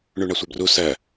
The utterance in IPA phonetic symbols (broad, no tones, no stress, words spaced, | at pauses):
ɳuɳasʷœbru sɜ